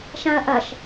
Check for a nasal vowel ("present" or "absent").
present